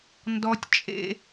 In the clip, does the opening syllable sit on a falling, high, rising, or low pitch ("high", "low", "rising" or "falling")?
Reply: high